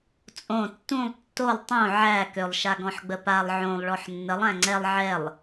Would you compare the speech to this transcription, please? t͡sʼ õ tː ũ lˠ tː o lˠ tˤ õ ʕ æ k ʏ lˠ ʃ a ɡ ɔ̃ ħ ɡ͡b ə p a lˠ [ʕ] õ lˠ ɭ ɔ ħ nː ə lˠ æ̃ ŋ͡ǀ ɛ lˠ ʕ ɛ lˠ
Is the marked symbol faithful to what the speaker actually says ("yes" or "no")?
yes